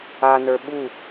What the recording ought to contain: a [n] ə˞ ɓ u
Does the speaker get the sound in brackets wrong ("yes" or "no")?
no